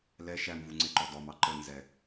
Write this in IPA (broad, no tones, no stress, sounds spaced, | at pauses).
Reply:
l ɛ ʃ æ m v u ŋ͡ǀ e ǃ ɔ d ɔ m ɑ ǃ ə n z ɛ